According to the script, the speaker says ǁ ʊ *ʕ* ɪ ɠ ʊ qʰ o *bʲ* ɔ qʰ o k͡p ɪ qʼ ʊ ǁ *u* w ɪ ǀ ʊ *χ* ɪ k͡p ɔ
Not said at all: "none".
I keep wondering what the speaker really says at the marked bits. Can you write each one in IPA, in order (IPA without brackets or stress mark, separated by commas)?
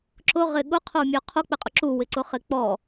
ʁ, mʲ, u, χ